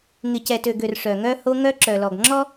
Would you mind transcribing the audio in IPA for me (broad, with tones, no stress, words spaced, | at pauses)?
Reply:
ŋɪ˨cɛ˨tø˨ɡø˨r ʂœ˨ŋœ˦ho˦ ŋœ˦ǁœ˨lɔ˨ɡ ŋ͡ǁɔ˦